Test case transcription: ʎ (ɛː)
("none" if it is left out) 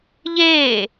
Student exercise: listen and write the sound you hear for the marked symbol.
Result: eː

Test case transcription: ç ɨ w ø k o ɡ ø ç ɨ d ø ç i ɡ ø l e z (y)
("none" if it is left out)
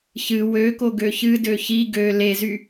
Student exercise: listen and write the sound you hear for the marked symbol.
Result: y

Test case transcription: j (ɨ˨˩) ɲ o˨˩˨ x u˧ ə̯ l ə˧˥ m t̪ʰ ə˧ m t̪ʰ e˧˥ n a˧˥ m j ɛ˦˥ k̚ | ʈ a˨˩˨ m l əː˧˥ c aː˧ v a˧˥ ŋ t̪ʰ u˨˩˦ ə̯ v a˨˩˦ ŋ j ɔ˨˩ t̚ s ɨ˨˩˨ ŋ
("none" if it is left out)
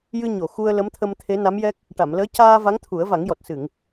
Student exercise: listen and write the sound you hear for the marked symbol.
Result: ɨ˧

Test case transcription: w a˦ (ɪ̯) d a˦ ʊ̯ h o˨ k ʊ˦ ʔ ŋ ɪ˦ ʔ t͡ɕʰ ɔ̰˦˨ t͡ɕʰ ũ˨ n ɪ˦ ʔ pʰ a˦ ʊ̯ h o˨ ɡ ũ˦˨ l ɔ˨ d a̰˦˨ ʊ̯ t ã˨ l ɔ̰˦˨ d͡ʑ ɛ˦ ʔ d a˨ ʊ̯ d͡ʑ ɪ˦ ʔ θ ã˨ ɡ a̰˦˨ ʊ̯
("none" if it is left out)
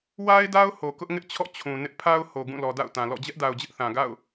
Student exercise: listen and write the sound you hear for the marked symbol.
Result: ɪ̯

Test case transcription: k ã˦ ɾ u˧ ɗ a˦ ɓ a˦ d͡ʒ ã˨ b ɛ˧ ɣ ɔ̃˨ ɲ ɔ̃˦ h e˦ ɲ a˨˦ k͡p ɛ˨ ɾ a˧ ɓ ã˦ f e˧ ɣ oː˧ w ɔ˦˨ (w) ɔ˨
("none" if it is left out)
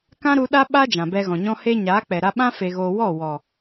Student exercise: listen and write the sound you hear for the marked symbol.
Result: w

